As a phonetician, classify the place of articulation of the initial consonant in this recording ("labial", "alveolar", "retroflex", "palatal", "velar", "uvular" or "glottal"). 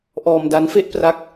glottal